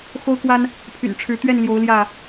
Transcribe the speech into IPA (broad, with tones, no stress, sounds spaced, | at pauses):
x o˦ ʊ̯ k w a˦ n | pʰ y̰˨˩ n ʈ͡ʂʰ ɻ̩˨˦ t̪ ɥ ɛ˥˨ n l j o˨˦ ʊ̯ l j ä˥˨